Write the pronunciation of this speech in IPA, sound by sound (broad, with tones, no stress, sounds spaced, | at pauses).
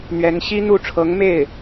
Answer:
n̪ ɥ ɛ˧˥ n ɕ i˥ n̪ u˥˩ ʈ͡ʂʰ ɤ˧˥ ŋ m e˥˩ ɪ̯